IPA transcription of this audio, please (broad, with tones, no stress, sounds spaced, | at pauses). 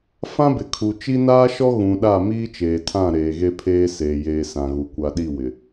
f ã˦ b ɪ˨ kʰ u˨ t͡ʃ i˦ n aː˦ ʃ ɔ˦ ɣ ũ˨ ɗ a˦˨ m iː˦ t͡ʃ eː˨ tʰ ã˦˨ ɾ eː˨ ɣ e˦ pʰ eː˦ s eː˨ j eː˨ s ã˨ ɣ u˨ kʷ a˨ ɗ i˦˨ w ɪ˨